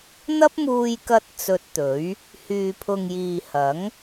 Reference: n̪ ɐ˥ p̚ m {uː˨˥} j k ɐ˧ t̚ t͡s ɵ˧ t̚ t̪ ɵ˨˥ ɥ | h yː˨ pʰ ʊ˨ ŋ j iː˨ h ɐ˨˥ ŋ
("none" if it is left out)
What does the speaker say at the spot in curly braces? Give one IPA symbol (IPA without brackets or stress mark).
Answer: uː˧